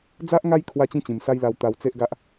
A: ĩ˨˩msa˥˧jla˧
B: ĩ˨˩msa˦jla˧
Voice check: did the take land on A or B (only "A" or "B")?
B